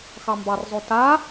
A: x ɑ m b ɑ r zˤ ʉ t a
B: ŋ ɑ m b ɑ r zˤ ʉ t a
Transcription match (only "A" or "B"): A